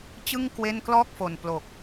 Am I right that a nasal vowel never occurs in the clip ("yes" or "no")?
yes